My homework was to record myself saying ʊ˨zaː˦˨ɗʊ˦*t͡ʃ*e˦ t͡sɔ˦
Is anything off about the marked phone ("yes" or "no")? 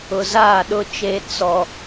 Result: no